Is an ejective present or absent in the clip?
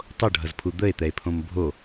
absent